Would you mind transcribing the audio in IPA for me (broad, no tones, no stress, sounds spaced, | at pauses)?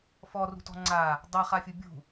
f ɔ r ṳ t ɔ̤ ŋ͡ǀ a | dˤ a χ a fʲ u bʲ ṳ